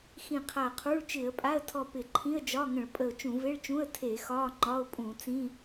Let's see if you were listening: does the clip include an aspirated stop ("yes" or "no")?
yes